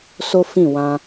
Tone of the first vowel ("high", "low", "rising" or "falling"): high